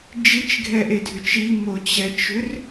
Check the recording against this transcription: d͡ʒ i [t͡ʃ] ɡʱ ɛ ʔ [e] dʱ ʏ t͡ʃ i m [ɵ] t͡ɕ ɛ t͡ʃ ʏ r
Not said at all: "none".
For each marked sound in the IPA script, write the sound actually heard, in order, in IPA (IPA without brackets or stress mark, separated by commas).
t͡ʃ, e, o